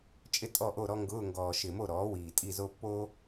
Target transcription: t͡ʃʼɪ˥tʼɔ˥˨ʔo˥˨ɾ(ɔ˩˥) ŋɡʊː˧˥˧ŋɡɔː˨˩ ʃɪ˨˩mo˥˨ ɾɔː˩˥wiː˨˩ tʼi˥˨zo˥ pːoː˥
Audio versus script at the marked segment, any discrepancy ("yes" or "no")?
yes